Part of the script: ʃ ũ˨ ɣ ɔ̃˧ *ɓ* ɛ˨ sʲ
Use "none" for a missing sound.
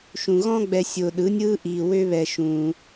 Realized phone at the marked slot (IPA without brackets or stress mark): ɡ͡b